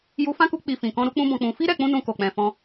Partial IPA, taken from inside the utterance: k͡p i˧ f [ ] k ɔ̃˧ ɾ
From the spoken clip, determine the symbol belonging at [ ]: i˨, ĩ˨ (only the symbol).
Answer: ĩ˨